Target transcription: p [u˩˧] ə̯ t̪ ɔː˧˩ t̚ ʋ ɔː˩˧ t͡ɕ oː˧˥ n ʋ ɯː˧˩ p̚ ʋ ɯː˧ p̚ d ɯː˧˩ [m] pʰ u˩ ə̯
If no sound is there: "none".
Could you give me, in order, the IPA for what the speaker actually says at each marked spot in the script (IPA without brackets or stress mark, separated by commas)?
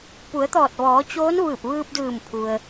u˩˧, m